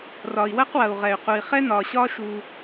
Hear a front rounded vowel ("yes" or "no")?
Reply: yes